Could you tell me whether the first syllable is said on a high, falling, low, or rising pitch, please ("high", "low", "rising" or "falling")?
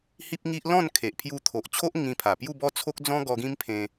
high